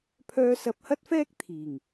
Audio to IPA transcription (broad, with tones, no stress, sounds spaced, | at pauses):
pʰ œː˨ s ɐ˨ p̚ h ɐ˧ t̚ f ɛː˧ k̚ t̪ʰ iː˨˩ ŋ